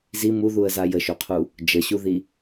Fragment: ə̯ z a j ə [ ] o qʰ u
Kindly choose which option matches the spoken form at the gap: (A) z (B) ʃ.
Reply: B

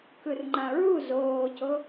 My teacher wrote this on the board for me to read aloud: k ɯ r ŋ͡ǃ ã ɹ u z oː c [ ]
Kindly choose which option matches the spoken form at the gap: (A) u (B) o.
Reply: B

